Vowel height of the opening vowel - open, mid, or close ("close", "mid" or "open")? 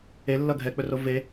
mid